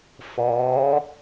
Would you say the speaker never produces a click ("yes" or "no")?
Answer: yes